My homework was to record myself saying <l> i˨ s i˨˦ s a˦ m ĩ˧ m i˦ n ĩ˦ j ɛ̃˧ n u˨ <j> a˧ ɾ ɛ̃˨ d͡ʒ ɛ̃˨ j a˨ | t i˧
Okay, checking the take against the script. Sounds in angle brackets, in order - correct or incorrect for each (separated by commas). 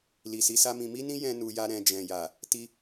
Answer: correct, correct